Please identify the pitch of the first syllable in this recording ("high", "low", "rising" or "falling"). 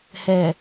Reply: low